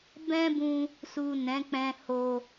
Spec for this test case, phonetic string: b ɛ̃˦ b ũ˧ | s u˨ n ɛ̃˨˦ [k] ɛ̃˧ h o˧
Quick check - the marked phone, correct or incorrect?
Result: incorrect